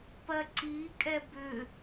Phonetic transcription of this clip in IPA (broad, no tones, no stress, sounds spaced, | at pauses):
p ɜ ǀ i kʼ ɛ b ʏ